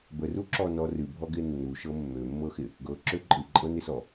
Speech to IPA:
b ə r u ǁ ɔ n ɔ r ɨ bʱ ɔ ɡ ɪ nː u ʃ ɤ mː ø mː ɤ x ɪ | ɡ ɤ ǁ ø ǃʼ ɨ ǃʼ ɤ n ɪ s ɔ

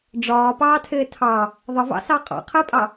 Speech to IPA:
ɖ͡ʐ ɒː p ɑː tʰ ɪː tʰ ɑ | ðˤ ə v ɑ̰ s ɑ qʼ ɑ̰ qʰ ɪː pʼ ɑ

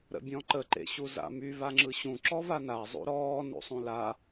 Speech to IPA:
ɾ ə̰ bʲ ɔ̃ ǃ ə ǃ ḛ ɕ u z a̰ m y v a ŋ͡ǁ ɯ ɕ ũ ǁ ɔ v a n a zˤ ṵ ɾ ɔː n ṵ sˤ ũ l a

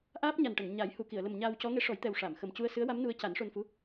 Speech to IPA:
ʔ aː˦˥ p̚ ɲ a˨˩ n ʈ ə˨˩˨ ŋ ɲ a˨˩˦ j h u˨˩˨ k i˨˩˨ ə̯ l ə˨˩ m ɲ aː˧ w c ɔ˧˥ ŋ e˧˥ ʂ ɔ˨˩˦ j t̪ ɛ˨˩ w ʂ a˨˩˨ m x ə˨˩ m c u˧ ə̯ s ɨ˧˥ ə̯ w a˧˥ m n u˧˥ ə̯ c a˨˩˦ n ʂ o˧ n f u˧˥

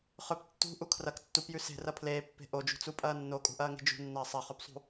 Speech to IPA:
χ ɵ p tː ṳ ʔ u kʰ r ɐ k tː u p j ʉ s e̤ r ɐ pʰ l eː pː e̤ ʔ o d͡ʒ ṳ t͡s u pʼ ɐː nː o kʼ ṳ ʔ ɐː ŋ e̤ d͡ʒ ṳ nː ɐː sˤ ɐ χ ɵ p sˤ ṳ

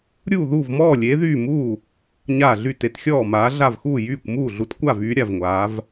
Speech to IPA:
ɾʲ uː˥˩ ð uː˥˩ v m ɔː˥˩ lʲ eː˨˥ ð yː˥˩ m uː˥˩ | ɲ aː˥˩ ɮ y˥˩ t e˨˥ t xʲ ɔː˥˩ m aː˨˥ ɮ a˥˩ v x uː˥˩ j yː˥˩ kʷ m uː˥˩ ɮ u˨˥ t kʷ a˥˩ v yː˨˥ ɾʲ a˥˩ v ŋʷ aː˨˥ v

